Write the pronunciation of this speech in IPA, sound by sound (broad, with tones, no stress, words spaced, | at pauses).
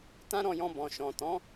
tã˦ɾɔ̃˧jɔ̃˧ bɔ̃˨ʃɔ̃˨tɔ̃˨˦